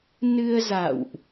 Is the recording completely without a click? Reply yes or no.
yes